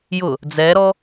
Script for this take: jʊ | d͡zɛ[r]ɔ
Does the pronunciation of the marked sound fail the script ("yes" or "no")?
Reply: yes